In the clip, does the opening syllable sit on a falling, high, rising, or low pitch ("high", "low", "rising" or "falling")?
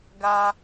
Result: high